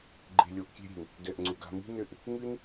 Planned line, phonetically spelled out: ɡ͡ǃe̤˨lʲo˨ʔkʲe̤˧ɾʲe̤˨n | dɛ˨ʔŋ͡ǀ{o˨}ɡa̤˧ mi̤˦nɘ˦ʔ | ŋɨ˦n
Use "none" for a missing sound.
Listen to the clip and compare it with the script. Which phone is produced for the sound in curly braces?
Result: u˨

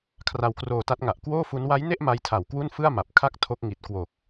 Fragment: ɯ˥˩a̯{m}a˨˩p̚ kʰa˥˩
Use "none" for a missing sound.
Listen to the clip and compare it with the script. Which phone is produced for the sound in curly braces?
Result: m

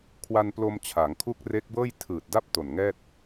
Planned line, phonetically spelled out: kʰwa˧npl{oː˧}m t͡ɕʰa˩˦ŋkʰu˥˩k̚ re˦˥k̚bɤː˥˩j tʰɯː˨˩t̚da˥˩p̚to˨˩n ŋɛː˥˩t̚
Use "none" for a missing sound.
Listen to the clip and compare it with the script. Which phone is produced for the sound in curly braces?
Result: o˧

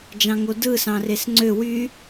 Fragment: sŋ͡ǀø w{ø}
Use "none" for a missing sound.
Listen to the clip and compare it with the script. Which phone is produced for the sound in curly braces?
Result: y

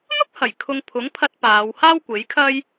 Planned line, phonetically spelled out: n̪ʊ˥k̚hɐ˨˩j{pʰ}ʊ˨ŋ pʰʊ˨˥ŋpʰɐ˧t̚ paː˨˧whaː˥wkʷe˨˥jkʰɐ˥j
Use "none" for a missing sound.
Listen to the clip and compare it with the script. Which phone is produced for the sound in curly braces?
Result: kʰ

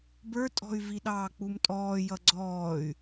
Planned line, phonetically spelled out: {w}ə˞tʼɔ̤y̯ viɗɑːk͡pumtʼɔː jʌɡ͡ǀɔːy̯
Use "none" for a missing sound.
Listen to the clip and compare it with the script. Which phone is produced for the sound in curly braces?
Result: b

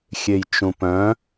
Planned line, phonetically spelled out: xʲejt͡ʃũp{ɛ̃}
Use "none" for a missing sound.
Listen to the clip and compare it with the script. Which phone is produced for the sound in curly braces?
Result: œ̃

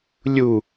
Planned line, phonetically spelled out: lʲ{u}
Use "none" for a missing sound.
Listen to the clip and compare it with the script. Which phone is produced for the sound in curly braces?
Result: u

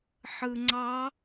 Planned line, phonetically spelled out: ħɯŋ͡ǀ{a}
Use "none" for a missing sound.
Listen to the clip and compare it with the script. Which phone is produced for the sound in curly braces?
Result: ɑ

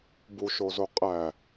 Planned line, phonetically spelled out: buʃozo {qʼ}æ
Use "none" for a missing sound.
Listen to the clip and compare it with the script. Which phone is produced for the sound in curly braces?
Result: qʼ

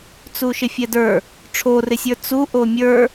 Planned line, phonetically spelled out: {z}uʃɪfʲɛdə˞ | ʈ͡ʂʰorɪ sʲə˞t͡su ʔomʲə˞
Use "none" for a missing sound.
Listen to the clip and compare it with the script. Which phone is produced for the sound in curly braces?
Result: t͡s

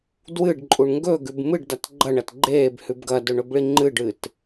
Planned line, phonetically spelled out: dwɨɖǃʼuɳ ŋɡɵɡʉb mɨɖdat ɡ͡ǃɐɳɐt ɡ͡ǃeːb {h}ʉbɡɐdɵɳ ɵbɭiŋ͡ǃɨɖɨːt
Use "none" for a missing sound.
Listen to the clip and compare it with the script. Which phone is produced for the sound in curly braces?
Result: h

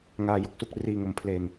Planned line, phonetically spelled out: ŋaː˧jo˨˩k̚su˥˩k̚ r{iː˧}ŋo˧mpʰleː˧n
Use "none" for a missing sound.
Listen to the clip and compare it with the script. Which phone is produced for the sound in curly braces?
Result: iː˧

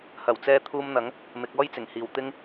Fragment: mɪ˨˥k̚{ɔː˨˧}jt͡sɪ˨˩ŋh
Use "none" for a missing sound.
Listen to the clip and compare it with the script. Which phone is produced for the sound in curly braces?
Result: ɔː˥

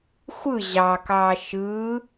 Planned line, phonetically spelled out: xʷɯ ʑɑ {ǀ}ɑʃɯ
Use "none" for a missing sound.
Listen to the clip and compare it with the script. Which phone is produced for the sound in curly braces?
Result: k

